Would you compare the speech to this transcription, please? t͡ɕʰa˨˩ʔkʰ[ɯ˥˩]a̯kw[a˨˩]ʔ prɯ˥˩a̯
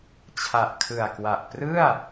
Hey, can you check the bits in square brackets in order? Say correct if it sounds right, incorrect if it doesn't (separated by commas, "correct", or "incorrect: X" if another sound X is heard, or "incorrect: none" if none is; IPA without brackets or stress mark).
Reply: incorrect: ɯ˨˩, correct